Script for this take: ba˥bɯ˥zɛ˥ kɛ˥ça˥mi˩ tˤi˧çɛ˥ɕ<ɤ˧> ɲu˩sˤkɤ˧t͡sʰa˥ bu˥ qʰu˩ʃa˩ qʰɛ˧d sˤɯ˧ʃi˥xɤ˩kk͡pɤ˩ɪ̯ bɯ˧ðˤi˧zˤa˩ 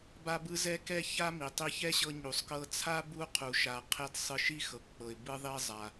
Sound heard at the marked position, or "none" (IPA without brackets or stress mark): ɤ˧